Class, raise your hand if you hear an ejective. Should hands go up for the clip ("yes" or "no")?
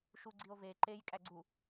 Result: yes